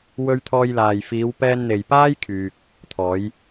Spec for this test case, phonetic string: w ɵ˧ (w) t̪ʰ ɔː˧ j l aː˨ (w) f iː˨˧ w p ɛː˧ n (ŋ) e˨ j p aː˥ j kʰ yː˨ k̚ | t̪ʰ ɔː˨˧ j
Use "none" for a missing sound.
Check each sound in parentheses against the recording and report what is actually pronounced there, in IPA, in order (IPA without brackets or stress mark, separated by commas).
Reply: ɥ, j, n̪